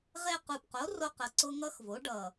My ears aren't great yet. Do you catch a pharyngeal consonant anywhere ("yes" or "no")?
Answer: no